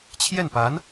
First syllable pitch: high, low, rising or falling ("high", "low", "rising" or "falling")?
falling